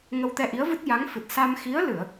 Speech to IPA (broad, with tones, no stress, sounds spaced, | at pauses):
ŋ ə˧ w t̪ ɛ˧ ʔ i˧˥ ə̯ v ɨ˦˥ t̚ j a˧˥ ŋ f ɨ˨˩ t̚ s a˧ m x i˧˥ ə̯ l ɨ˨˩˨ ə̯